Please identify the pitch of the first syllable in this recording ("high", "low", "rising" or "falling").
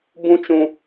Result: high